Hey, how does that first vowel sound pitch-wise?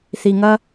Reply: low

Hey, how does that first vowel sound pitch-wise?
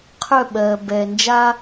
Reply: falling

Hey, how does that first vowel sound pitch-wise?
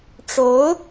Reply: rising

